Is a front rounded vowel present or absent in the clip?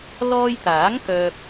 present